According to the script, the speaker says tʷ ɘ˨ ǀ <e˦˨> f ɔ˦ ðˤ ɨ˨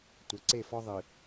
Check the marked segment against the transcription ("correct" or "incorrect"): correct